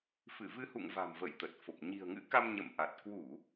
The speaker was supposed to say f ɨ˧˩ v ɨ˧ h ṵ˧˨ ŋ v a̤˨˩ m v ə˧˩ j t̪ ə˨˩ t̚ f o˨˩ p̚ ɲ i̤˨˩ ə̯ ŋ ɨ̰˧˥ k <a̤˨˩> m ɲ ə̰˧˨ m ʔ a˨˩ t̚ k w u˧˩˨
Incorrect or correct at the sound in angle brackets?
incorrect: a˧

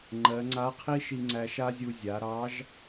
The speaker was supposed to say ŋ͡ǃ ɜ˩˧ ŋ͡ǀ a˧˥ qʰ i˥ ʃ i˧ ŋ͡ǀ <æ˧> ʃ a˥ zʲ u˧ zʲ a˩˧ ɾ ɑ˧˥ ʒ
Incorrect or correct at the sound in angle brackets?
correct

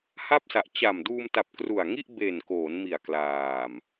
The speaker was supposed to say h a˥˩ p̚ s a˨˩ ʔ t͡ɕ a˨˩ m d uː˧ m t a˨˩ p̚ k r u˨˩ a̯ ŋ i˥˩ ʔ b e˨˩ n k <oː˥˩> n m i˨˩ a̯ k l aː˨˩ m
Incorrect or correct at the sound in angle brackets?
incorrect: oː˩˦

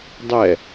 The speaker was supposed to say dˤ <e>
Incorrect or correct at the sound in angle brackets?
incorrect: ɛ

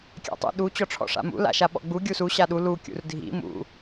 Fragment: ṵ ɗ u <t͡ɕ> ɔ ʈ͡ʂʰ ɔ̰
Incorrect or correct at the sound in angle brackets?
correct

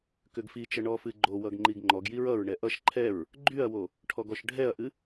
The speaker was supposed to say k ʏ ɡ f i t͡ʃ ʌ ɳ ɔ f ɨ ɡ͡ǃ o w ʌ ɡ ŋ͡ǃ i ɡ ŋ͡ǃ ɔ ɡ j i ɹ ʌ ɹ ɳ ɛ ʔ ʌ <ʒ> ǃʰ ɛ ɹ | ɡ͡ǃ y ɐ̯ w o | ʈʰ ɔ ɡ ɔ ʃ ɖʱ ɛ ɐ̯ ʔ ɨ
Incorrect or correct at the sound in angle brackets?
incorrect: ʃ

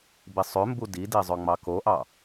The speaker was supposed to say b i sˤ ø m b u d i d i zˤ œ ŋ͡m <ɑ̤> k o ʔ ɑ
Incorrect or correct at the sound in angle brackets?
incorrect: ɑ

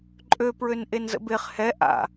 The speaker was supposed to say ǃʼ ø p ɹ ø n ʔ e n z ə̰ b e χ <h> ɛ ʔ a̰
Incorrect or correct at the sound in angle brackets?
correct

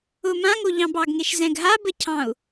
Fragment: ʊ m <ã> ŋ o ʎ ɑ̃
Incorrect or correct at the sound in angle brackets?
correct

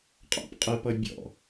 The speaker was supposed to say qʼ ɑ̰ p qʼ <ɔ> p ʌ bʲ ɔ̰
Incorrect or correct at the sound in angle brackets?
incorrect: ə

